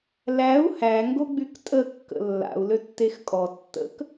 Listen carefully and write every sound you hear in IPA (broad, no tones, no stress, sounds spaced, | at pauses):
l æ u̯ h æ ŋ ɡ o ɡ͡b y k tʼ ə kː ə̰ lː a̰ u̯ l ø tː e x kʼ ɔ tː ə̰ k